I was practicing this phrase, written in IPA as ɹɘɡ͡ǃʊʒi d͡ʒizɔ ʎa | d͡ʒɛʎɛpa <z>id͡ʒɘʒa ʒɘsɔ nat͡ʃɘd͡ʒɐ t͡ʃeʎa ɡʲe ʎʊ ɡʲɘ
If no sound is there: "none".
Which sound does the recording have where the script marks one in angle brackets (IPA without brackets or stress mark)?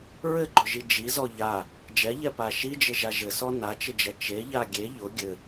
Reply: ʃ